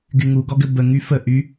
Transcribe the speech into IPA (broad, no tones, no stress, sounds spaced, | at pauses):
ɡ y ŋ u ɡ ɔ ɡ ɘ b ə ŋ y f ə ʔ y